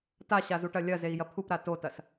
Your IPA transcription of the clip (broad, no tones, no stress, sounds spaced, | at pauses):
t a ɕ a z u ʈ ɐ lʲ ɐ z e i̯ j ɐ pʰ u p ɾ a t o t ɐ s